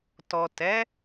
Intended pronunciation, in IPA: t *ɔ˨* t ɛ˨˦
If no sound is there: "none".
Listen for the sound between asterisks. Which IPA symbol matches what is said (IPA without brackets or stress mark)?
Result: ɔ˨